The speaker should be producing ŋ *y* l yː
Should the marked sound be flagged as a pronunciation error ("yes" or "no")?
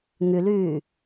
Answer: no